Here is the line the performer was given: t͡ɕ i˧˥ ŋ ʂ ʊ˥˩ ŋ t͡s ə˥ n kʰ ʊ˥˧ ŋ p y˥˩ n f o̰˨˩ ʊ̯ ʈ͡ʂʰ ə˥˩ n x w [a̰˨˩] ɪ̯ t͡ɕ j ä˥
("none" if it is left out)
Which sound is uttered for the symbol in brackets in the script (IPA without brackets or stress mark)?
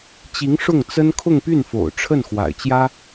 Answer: a̰˨˩